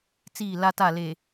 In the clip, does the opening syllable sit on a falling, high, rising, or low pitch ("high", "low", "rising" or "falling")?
falling